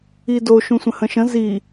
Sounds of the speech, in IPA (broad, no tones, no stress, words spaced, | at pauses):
ido ʃũsʷə̃hə̃ʃə̃ zi